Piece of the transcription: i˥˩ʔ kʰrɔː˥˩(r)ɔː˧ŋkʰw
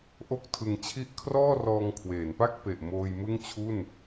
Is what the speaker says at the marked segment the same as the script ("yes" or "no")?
yes